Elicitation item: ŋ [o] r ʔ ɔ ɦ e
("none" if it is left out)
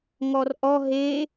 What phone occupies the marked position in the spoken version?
ɔ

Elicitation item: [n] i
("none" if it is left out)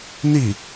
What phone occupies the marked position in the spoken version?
n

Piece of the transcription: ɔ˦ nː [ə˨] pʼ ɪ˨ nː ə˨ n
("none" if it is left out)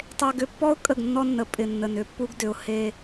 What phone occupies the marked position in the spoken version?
ə˨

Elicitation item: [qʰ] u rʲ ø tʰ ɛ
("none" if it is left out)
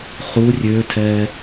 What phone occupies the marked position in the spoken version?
χ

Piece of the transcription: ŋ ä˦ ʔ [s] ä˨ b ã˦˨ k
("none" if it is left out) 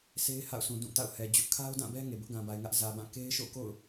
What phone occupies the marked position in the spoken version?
z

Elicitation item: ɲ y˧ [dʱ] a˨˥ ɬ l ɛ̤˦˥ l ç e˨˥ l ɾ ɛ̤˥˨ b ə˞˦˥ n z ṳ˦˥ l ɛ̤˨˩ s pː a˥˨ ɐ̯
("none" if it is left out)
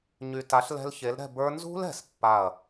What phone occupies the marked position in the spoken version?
t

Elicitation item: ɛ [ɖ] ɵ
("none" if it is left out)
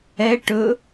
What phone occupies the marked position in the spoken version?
ʈ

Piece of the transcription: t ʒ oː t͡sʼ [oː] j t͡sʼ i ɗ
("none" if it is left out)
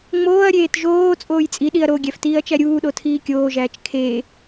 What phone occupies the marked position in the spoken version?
oː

